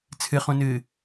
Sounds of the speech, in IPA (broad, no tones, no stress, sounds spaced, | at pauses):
t͡sʰ ɨ χ ũ n ɨː